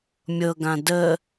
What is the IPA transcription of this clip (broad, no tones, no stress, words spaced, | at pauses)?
mʲɤɡã də